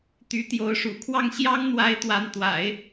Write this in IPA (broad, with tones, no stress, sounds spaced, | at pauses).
t̪ y˧˥ t̪ j o˧˥ ʊ̯ ʂ ṵ˨˩ kʰ w ɑ˥˩ ŋ ɕ j ɑ˥ ŋ n̪ w a˧˥ ɪ̯ t̪ w a˧˥ n t̪ w a̰˨˩˦ ɪ̯